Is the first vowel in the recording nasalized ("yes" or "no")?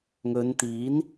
no